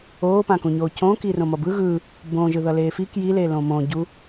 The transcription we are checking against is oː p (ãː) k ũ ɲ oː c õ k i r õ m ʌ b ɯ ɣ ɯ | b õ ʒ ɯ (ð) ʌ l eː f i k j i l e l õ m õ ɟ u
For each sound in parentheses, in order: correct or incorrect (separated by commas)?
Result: incorrect, correct